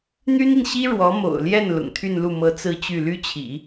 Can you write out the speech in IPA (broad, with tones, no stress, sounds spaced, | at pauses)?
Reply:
n̪ y˥ n i˨ n ɕ i˥ ɻ w ɔ˧˥ m o̰˨˩ ʊ̯ l j ɛ˥˩ n l ʊ̰˨˩ ŋ t̪ʰ y˥˧ n l u˥˩ m ɤ˧˥ t͡s ɹ̩˥˧ t͡ɕ y˥˩ l y˥ t͡ɕʰ ḭ˨˩˦